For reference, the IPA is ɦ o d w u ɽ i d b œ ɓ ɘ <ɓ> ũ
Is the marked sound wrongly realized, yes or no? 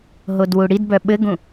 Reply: yes